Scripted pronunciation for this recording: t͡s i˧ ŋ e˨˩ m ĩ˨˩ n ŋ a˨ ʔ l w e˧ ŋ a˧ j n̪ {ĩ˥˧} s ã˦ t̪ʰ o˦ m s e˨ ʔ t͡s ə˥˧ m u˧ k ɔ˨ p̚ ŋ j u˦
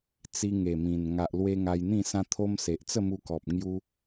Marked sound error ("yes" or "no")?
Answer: no